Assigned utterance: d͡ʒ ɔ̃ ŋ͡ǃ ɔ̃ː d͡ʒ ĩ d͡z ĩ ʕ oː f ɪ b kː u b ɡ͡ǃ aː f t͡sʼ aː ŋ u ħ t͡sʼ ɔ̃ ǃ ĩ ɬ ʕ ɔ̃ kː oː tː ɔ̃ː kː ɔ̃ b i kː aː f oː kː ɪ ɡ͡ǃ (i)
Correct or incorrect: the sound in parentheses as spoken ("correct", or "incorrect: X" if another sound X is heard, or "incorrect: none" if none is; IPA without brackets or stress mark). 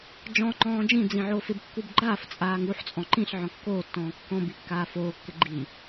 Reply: correct